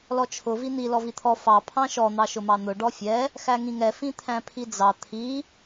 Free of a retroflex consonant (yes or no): no